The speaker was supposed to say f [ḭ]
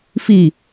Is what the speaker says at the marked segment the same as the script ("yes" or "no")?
no